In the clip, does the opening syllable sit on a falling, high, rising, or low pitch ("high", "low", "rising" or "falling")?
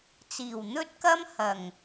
low